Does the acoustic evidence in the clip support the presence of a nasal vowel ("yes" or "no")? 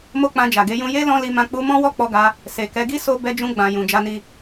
yes